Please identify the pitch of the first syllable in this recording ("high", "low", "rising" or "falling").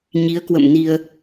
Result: rising